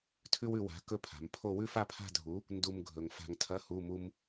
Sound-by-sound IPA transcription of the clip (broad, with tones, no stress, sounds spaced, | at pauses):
tʰ ʉ˥ w ʉ˧ w a̤˨˥ k ɵ˥˧ pʰ a̤˩˧ m pʰ o˥˧ w ʉ˥ f a˥˧ pʰ a̤˥˧ dʱ u˨˥ | n d u˥ m ɡʱ ɵ˧ ŋ f a̤˧ ŋ tʰ ɐ˧˥˧ h u˧˥˧ m u˥ m